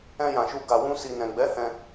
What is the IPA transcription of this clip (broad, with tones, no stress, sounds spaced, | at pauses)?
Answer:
ɛ̃˧ j ã˨ ʃ u˧ ɡ a˨ w ũ˧ s i˨ n ɛ̃˨ ɡ͡b ɛ˨˦ h ɛ̃˧